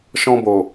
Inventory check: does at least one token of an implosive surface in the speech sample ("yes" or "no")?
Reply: no